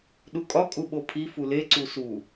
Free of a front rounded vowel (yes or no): yes